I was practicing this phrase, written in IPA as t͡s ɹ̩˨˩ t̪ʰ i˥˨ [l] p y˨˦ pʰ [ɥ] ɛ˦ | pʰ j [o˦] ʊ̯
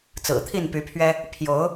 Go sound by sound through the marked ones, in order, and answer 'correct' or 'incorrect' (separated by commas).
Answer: incorrect, correct, incorrect